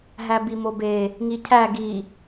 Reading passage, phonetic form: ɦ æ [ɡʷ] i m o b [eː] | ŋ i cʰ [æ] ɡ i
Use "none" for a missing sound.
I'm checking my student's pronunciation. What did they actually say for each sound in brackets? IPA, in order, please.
b, e, æ

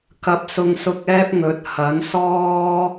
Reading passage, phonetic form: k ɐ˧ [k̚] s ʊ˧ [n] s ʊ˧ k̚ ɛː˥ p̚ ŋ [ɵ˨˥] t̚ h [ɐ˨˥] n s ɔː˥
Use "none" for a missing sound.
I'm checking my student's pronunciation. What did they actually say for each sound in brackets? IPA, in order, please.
p̚, ŋ, ɵ˨˥, ɐ˨˥

